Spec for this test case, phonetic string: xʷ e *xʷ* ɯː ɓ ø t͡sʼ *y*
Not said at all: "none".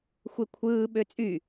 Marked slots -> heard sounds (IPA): kʷʰ, y

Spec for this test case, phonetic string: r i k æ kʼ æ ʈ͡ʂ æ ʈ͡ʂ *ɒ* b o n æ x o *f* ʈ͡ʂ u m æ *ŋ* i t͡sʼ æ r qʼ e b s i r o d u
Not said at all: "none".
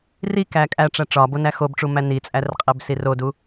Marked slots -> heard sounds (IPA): ɒ, b, n

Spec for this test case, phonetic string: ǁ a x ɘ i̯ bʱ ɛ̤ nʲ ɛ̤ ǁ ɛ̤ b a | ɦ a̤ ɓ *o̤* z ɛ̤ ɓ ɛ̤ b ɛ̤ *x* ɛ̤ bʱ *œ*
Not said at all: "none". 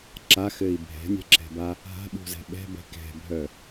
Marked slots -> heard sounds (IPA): ṳ, k, œ

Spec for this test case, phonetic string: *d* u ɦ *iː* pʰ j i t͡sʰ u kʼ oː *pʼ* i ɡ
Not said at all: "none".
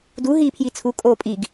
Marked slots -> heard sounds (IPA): d, iː, pʼ

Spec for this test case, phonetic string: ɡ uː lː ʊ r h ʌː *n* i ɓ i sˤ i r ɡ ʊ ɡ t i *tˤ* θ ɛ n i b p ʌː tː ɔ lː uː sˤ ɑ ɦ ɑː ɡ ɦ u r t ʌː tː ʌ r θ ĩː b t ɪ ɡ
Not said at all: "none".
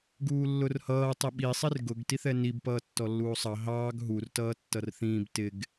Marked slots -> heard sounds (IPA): tˤ, none

